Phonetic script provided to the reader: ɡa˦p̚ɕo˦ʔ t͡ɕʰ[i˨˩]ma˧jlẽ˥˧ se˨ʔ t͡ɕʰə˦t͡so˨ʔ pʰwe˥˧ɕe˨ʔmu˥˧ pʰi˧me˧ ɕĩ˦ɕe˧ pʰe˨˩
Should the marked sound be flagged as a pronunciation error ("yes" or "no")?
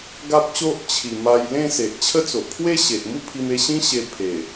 no